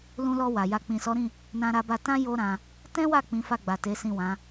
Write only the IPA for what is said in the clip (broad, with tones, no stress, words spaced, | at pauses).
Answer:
lũ˧lɔ˧ wa˨ja˧ k͡pĩ˨sɔ˨˦ɾĩ˦˨ | nã˧ɾa˧ba˧tã˦ jo˦ɾã˧ | tɛ̃˦wa˦˨ k͡pĩ˨˦fa˦˨ɡ͡ba˨ te˨˦sĩ˦˨wã˨˦